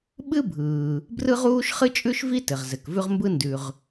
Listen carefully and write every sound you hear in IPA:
ɓ ɨ˥ bʱ ɯː˩ | b r ɯ˥ ʁ uː˥ ʃ χ ɨ˥ t͡ʃʼ ʉ˥ ʃ v i˥ t ɘ˩ ʁ z ɘ˩ k v ʉ˥ ʁ m b ɯ˥ n d ʉ˩ ʁ

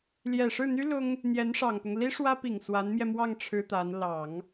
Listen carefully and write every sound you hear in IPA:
l j ɛ˨˩ ʂ ɻ̩˥˩ n̪ y˥ l ʊ˥ ŋ | n̪ j ɛ˧˥ n ʂ ɑ˨˩ ŋ p ʊ˦ ŋ l i˥ ʂ w ä˥ p i˨˩ ŋ s w a˧˥ n m j ɛ˧ m w ɑ˥˩ ŋ ʈ͡ʂʰ ɻ̩˥ t̪ a˧˥ n l ɑ˨˩˦ ŋ

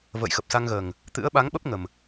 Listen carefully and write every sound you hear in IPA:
v ə̰ː˧˨ j x ə˨˩ p̚ s a˧ ŋ ɣ əː˨˩ ŋ | t̪ ɨ̰˧˥ ə̯ ɓ a˨˦ ŋ ɓ ə˦˥ p̚ ŋ ə˨˩ m

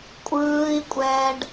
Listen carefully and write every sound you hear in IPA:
kʷʼ ɯː i̯ kʷʼ ɛː ɖ

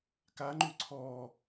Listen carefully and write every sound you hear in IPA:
k a ŋ͡ǃ y ǀʰ ɔ

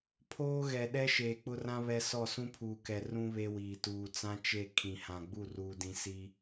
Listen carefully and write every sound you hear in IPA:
pʰ oː˦ ɣ ɛ˨ ɗ ɛ˦ ʃ eː˨ k͡p ʊ˦ r ã˦ β ɛ˦ s ɔ˦˨ s ũ˦ pʰ uː˨ k ɛ˨ r ũ˦ β e˦ w iː˨ t uː˨ t͡s ã˦ t͡ʃ e˦˨ kʰ ĩ˨ h ã˨ ɡ͡b u˦˨ r uː˨ d ĩ˨ s i˦

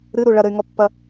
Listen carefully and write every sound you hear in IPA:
ɾ ɨ ɾ u ɭ ɐ ɾ ɘ y̯ ŋ ɔ pː ɐ

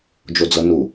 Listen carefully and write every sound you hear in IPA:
d͡ʒ o d͡z ɤ n u

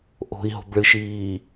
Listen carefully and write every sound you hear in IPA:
ʔ o̤ i̯ ɦ o̤ b ɭ ɨ ʃ iː

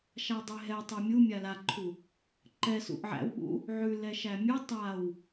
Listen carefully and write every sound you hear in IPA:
ʃ a dˤ e ɦ ɛ tˤ ɛ mʲ u mʲ a l a ǃʰ u | ǃ ɛ s ṵ ʔ ʕ æ̰ w ɓ ṵ | ʕ ʉ l ɛ ʃ æ mʲ ʉ tˤ a w

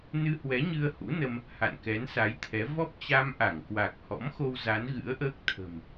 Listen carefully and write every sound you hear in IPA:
n ɨ˧ h w ɛ˨˦ ɲ ɨ˧ ə̯ h ṵ˧˥ n ə˧ m | h a̰˧˨ n k ɛ˨˦ n s a˨˦ j t̪ʰ ɛ˨˦ v ɔ˦˥ p̚ t͡ɕ a˧ m ʔ a˧˩ ŋ k w a˨˩ k̚ h ɔ̰˧˥ m x o˧ w z a˨˦ n ɣ ɨ̰˧˥ ə̯ ʔ əː˦˥ k̚ t̪ʰ ə̤˨˩ m

